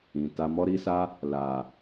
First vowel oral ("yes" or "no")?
no